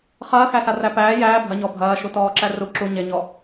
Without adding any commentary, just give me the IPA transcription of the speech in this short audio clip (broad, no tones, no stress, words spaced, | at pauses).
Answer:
χɐːxæsaræ pæː jæː bʱɐɲɔ bʱɐːʃutɔːǁæ ru ǁu ɲeɲɔ